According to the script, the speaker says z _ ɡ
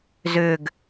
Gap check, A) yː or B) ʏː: B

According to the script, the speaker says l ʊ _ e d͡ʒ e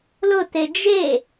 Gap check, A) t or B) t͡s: A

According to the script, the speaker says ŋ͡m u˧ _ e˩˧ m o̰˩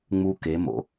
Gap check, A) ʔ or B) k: B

